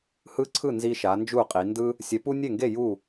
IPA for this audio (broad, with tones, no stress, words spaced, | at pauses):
hɯ˦ǀʰɯ˥˨ nzi˦ʃa˨˦nd͡ʒu˥˨qʼi˨˦ ndɯ˦ | sʲɛ˨˦pu˦ nʲe˥˨ŋɡe˥˨ ju˥˨